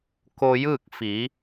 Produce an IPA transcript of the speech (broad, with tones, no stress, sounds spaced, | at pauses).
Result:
k o˧ j ɯː˥˨ k̚ f i˩˧